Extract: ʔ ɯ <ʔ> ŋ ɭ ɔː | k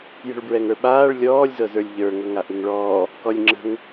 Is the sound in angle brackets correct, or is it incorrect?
incorrect